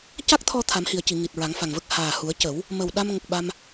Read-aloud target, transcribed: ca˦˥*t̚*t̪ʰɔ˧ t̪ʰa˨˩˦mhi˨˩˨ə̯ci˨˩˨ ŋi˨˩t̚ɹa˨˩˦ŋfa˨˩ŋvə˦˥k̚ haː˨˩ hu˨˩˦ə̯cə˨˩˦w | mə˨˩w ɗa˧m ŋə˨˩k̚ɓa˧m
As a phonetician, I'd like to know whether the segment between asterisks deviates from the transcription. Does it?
yes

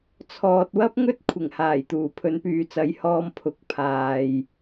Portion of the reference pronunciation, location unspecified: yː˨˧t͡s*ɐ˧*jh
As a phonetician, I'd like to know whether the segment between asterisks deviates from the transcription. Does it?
yes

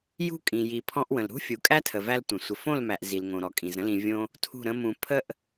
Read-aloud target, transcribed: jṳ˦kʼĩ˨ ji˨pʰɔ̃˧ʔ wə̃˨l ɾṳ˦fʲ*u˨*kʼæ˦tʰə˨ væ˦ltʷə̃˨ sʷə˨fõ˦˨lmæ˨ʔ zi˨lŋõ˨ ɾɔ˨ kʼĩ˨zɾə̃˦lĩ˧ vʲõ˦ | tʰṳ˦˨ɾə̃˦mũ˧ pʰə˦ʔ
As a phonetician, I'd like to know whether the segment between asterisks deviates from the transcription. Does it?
no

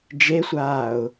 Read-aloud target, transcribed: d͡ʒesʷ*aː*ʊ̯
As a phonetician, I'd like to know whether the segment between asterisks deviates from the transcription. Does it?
no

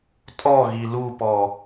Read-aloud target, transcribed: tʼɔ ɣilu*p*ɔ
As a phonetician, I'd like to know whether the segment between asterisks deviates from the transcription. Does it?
no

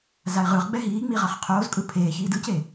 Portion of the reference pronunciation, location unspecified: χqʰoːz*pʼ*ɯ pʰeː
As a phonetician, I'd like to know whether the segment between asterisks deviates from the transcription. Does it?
yes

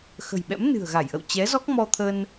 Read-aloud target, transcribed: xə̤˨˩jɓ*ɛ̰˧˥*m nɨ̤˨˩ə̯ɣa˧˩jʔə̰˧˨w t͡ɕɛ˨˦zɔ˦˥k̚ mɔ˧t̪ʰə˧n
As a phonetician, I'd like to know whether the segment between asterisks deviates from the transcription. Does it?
no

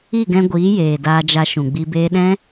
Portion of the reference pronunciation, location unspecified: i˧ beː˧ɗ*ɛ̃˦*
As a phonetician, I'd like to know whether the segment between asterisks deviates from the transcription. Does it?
no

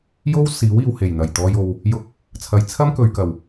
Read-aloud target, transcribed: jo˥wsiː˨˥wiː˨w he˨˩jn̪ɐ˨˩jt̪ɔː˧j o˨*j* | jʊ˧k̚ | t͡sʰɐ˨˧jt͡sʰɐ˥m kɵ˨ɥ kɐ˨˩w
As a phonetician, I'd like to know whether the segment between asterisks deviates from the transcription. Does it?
yes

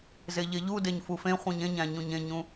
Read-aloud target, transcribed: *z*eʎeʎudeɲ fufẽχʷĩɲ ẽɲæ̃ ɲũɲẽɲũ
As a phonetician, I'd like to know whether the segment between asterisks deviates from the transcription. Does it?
no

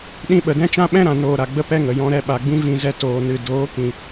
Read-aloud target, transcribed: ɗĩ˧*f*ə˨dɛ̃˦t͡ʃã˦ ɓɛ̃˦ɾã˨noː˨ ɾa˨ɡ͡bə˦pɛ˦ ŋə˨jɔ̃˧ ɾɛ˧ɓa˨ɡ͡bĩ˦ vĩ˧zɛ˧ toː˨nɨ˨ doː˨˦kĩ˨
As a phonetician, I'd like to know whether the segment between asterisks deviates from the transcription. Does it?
yes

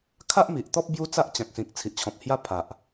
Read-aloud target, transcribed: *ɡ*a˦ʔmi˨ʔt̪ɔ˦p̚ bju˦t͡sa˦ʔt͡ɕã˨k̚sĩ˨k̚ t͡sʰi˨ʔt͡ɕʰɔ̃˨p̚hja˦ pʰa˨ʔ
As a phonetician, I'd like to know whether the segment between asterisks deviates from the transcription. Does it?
yes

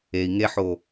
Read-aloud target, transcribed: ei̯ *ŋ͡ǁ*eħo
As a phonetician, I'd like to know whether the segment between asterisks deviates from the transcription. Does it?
yes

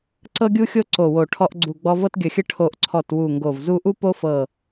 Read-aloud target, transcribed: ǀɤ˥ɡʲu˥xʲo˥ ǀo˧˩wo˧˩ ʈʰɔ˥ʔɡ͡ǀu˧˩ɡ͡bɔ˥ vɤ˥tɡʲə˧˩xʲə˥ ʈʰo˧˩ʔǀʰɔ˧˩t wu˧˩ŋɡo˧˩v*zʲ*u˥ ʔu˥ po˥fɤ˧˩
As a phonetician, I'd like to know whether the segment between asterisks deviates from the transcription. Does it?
yes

